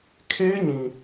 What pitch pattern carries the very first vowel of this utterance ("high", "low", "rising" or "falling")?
high